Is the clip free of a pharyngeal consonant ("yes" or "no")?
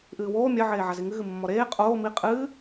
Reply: no